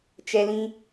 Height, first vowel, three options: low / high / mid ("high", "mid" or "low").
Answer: mid